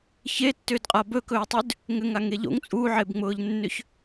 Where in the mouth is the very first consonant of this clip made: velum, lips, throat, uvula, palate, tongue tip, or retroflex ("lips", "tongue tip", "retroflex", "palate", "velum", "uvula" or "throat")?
palate